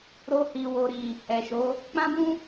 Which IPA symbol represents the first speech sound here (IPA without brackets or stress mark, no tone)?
ɾ